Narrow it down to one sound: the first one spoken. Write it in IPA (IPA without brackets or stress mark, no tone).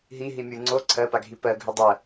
ɦ